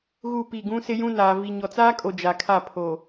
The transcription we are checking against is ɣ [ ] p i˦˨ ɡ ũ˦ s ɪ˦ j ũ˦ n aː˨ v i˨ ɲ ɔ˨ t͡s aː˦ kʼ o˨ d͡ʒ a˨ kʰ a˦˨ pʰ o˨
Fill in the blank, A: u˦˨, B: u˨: A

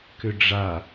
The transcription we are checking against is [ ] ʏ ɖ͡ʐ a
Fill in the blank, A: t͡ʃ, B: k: B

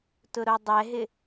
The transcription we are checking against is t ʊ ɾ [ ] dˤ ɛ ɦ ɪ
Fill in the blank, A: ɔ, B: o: B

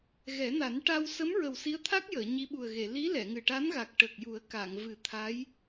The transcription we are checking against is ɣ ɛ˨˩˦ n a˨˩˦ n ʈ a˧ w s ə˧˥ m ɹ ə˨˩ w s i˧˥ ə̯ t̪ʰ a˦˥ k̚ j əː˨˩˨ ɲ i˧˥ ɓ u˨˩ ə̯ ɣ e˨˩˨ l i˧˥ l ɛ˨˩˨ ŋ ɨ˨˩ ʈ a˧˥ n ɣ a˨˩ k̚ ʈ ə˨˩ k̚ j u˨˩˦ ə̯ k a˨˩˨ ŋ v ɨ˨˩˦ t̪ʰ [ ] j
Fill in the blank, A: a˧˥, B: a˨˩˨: A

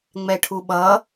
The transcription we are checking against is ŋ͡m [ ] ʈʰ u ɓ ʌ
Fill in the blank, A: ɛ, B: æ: A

